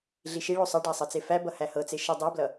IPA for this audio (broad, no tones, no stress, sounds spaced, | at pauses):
ɮ i ʃ i ɭ o sˤ ʌ ɖ æ sˤ ɤ t͡s e f æ b ʌ h æ h ɤ t͡s e ʃ ʌ dˤ o b l ʌ